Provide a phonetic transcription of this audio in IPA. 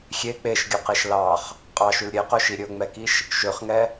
xʲe k͡peʃɡʲɵqeʃ lɑχ | qʼɑʃʉl ɾʲeqɵʃi ɾʲɵŋ͡mɛkiʃ | ʃøχŋɛ

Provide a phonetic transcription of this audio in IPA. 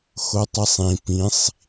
xotˤisˤĩ pĩsˤ

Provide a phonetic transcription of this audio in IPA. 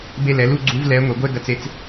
be˧lɛ˩˧lu˩˧ ɡ͡ǀu˧˥vlɛ˧˥ŋʷe˩˧ɡʷɛ˥ ɡɐ˧t͡se˧t͡s

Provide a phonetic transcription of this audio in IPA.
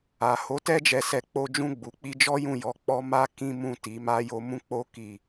a˨ho˨˦ tɛ˦d͡ʒɛ˧sɛ˧ k͡po˧d͡ʒũ˧ɡ͡bu˨k͡pi˧ d͡ʒɔ˦jũ˦˨jɔ˨˦ k͡pɔ˧ma˧ kĩ˦mũ˦˨ ti˨˦ma˦jo˦ mũ˦k͡po˦ ki˦˨

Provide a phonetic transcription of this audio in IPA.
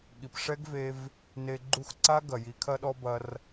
ɠi˨pʂɛ˦ɡve˧v | ne˧ ɡ͡ǃu˦˨xǀa˦ ɡɐ˨ji˨˦kʰɐ˦ɗɔ˦ bɐ˧r

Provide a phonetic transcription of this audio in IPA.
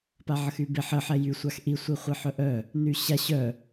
paʕəxybeħ ə ħɛjy sʷaxʔi sʷiχʷiħœʔœ | nyɕa ɕœ

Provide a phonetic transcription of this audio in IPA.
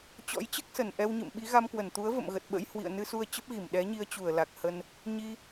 t͡ɕɔ̰˧˥jt͡ɕɨ˦˥k̚sə˧˩n ʔɛ˧wɲɨ̰˧˨mɓi˨˦ ɣa˧mkwə˧˩nt̪u˨˦ə̯ və̰˧˨mɣə˨˩t̚ɓə̰˧˥j hwḭ˧˨ə̯nɨ˧su˧ə̯ t͡ɕə˦˥p̚ɣi˧˩m ɗɛ˨˦ɲi˧ə̯t͡ɕu˧˩ə̯ la˨˩k̚hə˧n | ɲi˧

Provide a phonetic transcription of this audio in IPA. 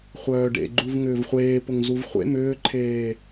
χʷœːɖḛɡ͡ǃuv ŋʏːvχʷeː pʊŋzuvχʷḛ mʏːǃʰeː

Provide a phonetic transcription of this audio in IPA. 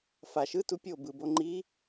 faʃ ɯtu pʲo bɯbo ŋ͡ǃi

